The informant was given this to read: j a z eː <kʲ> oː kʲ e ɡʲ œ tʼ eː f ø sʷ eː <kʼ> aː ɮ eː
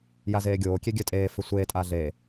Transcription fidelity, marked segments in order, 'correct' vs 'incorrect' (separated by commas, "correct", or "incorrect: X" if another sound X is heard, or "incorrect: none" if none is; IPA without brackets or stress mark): incorrect: ɡʲ, incorrect: tʼ